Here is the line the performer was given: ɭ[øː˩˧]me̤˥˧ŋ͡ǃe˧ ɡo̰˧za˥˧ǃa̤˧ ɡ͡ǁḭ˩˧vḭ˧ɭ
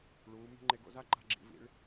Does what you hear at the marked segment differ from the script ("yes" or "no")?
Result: yes